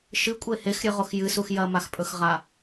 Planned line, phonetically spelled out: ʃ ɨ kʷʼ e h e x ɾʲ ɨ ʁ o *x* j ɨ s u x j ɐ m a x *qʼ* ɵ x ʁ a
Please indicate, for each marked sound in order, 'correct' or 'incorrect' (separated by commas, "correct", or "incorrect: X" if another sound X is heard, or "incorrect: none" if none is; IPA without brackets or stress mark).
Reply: correct, incorrect: pʼ